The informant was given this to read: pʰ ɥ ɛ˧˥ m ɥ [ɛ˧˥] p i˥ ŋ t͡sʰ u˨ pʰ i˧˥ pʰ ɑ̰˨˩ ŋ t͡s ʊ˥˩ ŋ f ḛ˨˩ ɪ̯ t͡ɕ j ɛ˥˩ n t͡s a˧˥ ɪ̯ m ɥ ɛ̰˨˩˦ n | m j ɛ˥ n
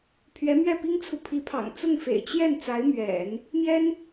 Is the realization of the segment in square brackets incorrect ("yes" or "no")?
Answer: yes